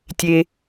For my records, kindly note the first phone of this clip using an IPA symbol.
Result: tʲ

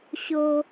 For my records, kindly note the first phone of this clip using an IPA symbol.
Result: ɕ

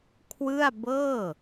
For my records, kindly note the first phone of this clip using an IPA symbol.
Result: kʰ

